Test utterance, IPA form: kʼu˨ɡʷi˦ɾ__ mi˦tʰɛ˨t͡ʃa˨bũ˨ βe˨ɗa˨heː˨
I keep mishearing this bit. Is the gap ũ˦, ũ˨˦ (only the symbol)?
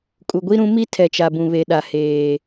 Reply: ũ˨˦